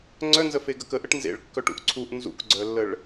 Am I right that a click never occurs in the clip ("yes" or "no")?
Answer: no